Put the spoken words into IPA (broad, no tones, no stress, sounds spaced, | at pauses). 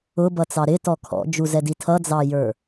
ʊ b ʌ t͡s ɑ ɾ ɪ t ɔ kʰ ɔ̰ d͡ʒ u z ɛ d i tʰ ʌ d͡z ɑ j ə˞